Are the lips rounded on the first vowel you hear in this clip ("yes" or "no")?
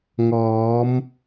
yes